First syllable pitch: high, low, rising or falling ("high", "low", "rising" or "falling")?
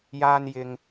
high